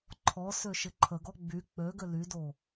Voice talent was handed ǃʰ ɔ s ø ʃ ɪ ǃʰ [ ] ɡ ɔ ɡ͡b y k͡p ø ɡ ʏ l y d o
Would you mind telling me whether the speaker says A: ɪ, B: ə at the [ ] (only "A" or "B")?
B